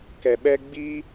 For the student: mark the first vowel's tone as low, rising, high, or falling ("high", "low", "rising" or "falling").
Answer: low